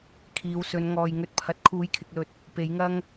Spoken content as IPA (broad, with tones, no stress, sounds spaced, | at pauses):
kʰ iː˨˧ w s ɵ˨˧ n ŋ ɔː˨ j ŋ ɵ˧ t̚ pʰ ɐ˨˥ t̚ kʰ uː˨˥ j kʰ ɪ˨ k̚ l ɵ˨ t̚ | p e˨˥ j ŋ ɐ˥ ŋ